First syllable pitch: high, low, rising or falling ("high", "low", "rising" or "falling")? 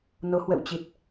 rising